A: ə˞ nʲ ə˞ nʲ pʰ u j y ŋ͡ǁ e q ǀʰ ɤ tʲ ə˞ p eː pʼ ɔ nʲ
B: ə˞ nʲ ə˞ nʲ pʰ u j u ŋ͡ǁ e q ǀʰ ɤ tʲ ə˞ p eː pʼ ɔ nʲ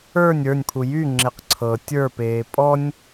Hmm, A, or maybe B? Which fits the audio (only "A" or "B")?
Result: A